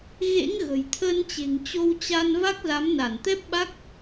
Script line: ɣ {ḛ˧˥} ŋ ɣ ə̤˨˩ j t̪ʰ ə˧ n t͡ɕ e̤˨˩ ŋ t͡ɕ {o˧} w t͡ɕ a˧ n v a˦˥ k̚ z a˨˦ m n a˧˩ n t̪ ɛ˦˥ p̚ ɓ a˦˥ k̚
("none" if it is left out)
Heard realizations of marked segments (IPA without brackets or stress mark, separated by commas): ḛ˧˥, o˧